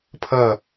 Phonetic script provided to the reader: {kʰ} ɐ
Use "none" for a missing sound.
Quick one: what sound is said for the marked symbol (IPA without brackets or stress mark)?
pʰ